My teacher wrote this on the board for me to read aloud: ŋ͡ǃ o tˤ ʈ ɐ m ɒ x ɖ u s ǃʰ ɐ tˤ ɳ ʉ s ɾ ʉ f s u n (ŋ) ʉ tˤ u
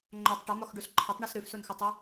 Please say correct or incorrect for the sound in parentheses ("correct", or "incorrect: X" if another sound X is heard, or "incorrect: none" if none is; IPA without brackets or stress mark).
incorrect: x